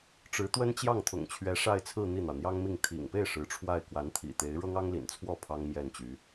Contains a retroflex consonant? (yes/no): yes